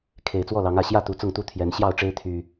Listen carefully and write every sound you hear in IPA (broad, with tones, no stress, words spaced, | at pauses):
kʰe˨˩ɪ̯t͡swɔ˥˨lɑ˨˦ŋä˨˩ ɕjä˥˨t̪u˨˩ t͡sʊ˥˨ŋt̪u˥˨ t̪ʰjɛ˨˦n ɕjɑ˥˨ʊ̯ʈ͡ʂe˦ɪ̯ t̪ʰy˨˩